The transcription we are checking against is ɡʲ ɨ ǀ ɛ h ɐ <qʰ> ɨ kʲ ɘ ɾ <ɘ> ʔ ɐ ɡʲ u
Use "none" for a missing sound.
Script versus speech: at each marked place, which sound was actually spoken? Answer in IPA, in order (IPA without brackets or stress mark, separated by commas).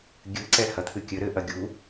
t̪ʰ, ɘ